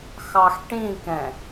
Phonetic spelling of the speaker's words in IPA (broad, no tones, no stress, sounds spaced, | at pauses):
x ɑ x ʈ ĩ k ɛ̃